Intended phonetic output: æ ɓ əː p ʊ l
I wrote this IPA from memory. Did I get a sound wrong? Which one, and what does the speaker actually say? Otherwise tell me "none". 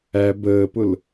ɓ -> b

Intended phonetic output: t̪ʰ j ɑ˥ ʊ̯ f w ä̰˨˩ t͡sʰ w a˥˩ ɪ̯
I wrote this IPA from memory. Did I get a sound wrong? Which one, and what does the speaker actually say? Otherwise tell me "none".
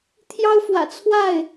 none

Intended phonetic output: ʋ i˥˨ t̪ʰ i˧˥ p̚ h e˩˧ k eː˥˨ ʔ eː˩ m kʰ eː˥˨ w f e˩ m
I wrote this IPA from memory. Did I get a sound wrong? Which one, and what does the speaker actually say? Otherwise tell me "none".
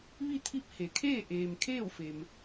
k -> kʰ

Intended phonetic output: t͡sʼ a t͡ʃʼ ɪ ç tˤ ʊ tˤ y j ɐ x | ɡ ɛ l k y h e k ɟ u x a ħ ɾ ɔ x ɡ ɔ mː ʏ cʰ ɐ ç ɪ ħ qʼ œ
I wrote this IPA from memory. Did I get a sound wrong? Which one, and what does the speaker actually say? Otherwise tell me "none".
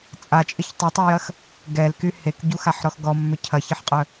none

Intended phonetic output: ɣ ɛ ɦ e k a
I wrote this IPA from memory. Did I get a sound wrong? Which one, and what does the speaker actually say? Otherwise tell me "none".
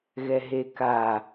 none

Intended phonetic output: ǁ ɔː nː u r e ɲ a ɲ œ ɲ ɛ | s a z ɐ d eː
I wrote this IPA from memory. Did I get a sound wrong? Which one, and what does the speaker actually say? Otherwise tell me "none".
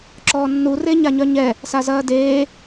ɐ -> ɐː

